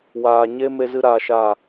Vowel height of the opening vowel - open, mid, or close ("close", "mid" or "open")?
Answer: open